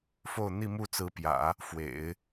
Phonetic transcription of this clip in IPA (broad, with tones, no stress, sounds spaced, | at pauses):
f o˥˧ ʊ̯ n̪ i˥˧ m u˥˩ t͡s ɹ̩˧˥ p j ä̰˨˩˦ | f w ḛ˨˩˦ ɪ̯